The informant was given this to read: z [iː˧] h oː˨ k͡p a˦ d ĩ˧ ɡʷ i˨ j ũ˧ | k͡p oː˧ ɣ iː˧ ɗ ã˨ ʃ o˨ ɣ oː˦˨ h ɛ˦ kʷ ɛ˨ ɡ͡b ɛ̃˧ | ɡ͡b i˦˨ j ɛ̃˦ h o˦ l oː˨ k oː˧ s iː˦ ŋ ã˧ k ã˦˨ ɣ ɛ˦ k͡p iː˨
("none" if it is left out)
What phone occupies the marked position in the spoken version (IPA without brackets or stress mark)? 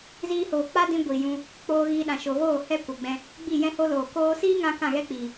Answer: iː˧